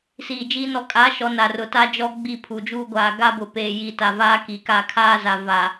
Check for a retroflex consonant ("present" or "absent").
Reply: absent